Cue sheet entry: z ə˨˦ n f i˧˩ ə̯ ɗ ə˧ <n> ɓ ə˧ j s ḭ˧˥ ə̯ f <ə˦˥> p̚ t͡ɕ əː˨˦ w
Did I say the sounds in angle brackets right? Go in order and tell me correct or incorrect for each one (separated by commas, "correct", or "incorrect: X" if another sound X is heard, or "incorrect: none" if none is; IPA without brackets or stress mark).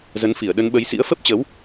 correct, correct